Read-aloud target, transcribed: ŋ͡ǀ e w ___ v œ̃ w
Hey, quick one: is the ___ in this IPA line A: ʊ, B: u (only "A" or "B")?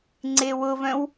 A